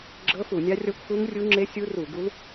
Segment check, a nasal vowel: absent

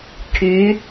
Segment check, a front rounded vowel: present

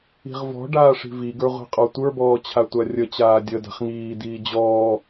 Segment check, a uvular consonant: present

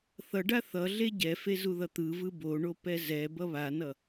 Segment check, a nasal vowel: absent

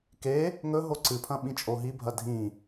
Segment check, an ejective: present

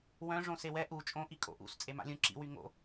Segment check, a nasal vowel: present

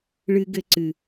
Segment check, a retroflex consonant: present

